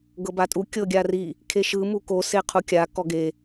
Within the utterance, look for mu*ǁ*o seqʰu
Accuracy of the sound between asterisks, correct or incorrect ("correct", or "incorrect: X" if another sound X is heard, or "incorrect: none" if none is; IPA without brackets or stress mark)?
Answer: incorrect: k